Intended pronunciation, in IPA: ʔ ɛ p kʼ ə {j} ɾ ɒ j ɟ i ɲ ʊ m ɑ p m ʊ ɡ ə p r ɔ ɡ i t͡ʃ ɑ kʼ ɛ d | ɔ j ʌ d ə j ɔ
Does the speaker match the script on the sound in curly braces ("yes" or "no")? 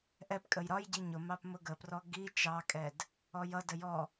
yes